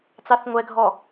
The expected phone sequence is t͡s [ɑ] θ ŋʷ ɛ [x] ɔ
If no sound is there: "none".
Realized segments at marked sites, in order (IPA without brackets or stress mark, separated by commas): ɑ, ɡʱ